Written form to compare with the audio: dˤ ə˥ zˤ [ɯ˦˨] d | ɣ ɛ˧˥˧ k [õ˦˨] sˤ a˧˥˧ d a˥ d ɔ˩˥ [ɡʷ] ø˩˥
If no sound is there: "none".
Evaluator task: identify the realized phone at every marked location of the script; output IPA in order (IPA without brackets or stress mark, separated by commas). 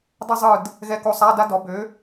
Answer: ɯ˦˨, o˦˨, b